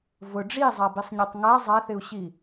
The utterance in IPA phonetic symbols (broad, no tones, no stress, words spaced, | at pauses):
vʊ ɖ͡ʐizˤabisˤɲitˤ ŋa zˤaθɪu̯ɕi